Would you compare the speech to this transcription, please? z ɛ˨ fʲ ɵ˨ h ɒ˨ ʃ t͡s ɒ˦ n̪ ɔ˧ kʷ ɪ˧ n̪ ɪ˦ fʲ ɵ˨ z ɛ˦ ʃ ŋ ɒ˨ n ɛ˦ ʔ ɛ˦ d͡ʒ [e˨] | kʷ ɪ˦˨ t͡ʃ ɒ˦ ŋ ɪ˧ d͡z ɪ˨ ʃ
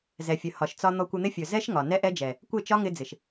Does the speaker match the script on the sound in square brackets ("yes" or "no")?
no